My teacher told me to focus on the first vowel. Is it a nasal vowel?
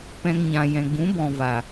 yes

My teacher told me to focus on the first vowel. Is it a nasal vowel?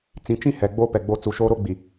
yes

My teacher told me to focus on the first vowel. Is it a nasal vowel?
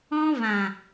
yes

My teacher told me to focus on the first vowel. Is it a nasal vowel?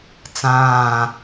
yes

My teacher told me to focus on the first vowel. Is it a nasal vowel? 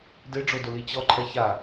no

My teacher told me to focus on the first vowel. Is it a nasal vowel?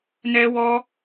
no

